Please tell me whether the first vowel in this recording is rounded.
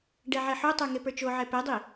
no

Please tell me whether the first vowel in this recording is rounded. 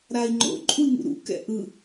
no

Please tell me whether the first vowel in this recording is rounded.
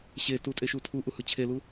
no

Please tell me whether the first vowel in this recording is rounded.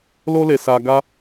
yes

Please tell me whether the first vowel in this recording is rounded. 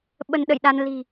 no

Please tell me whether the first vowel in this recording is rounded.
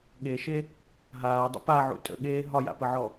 no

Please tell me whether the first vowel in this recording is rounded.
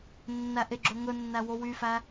no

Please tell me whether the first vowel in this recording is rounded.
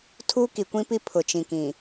yes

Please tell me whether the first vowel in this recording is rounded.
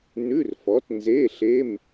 yes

